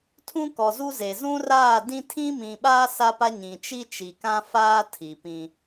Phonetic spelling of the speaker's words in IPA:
tʰ ũ˦ k ɔ˨ z u˦ z e˨ z ũ˦ r aː˦˨ d ĩ˦ tʰ ĩ˦ m ĩ˨ ɓ aː˦ s a˦ p a˦ ɲ ĩ˨ t͡ʃ i˦ t͡ʃ i˨ k ã˦ f aː˦ tʰ i˨ p ĩ˦

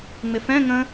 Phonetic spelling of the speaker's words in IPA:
ŋ͡m ɪ f ɛ̃ ŋ ə̃

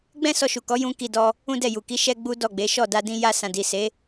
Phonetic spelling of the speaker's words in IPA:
ɡ͡b ɛ̃˦ s ɔ˧ ʃ u˨ k ɔ˨˦ j ũ˦ k i˧ d ɔ˧ | ũ˦ d ɛ˦˨ j u˨ k i˨˦ ʃ ɛ˦ ɡ͡b u˦ d ɔ˦˨ ɡ͡b e˨˦ ʃ ɔ˦˨ d a˧ d ĩ˧ j a˧ s ã˨ d i˨ s e˨˦

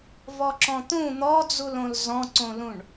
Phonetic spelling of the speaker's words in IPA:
v ɔ ǁ ɔ̃ t̪ ũ n̪ ɔ d͡z u l õ l z ɔ̃ ǀ õ l ũ ɳ

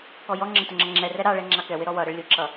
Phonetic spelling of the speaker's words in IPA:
k ɔ j ɔ ŋ͡ǁ ə t ʊ ŋ͡ǁ ʌ ŋ͡ǁ ɛ r ɛ ɾ ɑ ɭ ɛ ŋ͡ǁ ɑ k ɛ w ɪ ɾ ɔ w ʌ ɾ ə ɭ lʲ ʊ ǁ ʌ

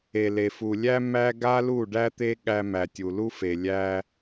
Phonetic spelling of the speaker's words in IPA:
e˨ l e˨ f u˨ lʲ æ˦ m æ˦ ɡ a˦ l u˦˨ ɖ æ˦ t̪ e˦ ɠ æ˧ m æ˨ tʲ u˨ l u˦ f e˨ lʲ æ˧

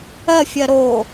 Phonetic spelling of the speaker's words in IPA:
ɜ fʲ ɜ ɾ o

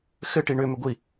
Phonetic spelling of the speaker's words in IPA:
x ɘ ʈ i ɳ ʏ m ʏ ɡʷ i

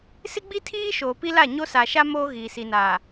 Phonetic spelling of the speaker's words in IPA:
s ɪ˦ ɡ͡b i˦ tʰ iː˦ ʃ oː˨ p i˦ l a˦˨ ɲ o˦ s aː˨ ʃ a˦ m oː˦ ɣ iː˨ s i˨ n a˨

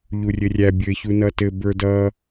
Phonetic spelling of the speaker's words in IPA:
ʎ u rʲ ɘ rʲ æ bʲ ɘ ç u n ʌ t ɘ b ə˞ d ʌ

